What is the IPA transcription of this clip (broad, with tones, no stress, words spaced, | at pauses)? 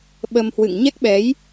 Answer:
ɓə˧mhwɨ̰˧˨ŋ ɲɛ˦˥k̚ɓɛ˨˦j